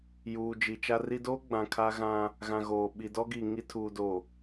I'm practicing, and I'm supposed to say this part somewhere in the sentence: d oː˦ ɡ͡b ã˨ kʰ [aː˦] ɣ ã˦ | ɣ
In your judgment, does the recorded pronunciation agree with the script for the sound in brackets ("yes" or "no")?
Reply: no